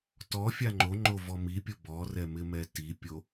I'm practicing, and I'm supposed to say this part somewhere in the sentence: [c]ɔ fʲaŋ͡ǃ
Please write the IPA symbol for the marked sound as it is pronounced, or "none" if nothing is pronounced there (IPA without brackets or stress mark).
t